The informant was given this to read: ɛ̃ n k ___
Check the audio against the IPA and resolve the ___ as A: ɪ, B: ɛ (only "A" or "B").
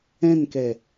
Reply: B